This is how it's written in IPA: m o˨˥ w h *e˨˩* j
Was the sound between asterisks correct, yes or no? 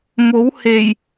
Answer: yes